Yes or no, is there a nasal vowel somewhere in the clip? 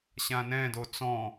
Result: yes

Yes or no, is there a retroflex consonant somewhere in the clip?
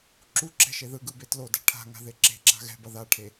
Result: yes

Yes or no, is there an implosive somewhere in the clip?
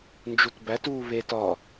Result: no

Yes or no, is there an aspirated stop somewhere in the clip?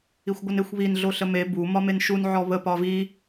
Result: no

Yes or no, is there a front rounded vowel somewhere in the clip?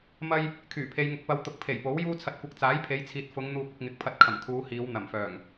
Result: yes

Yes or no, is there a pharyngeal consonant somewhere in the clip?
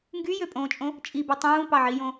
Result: yes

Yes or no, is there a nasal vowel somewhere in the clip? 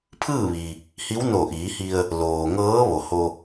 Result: no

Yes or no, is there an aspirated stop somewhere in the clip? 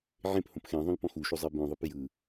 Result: no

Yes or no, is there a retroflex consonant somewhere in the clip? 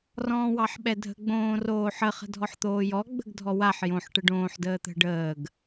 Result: yes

